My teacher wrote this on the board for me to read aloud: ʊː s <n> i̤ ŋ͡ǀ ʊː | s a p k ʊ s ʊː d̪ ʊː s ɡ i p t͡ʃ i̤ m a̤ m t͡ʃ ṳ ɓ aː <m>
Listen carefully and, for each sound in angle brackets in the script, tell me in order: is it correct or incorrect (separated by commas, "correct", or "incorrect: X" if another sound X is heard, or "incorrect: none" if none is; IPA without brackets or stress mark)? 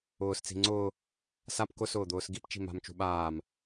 incorrect: t͡s, correct